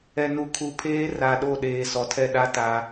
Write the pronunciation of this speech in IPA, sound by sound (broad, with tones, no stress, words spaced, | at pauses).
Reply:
ɛ˨nu˨kʰu˨pʰeː˦ ra˨ɗo˦˨ ɗeː˨sɔ˨tʰɛ˦ɗa˦ ta˦